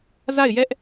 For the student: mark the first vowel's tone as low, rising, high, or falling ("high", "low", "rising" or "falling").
falling